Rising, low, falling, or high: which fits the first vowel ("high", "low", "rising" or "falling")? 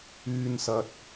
low